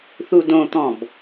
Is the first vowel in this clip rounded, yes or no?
yes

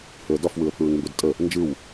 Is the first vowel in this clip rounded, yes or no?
yes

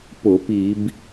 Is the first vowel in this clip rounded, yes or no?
yes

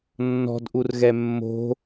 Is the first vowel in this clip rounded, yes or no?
yes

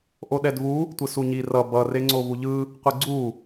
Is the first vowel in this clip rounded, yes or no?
yes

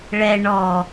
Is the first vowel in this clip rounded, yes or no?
no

